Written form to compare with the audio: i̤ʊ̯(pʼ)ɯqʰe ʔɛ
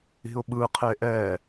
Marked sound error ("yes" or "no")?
yes